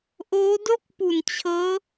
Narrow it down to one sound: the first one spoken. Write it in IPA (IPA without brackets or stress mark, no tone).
ʔ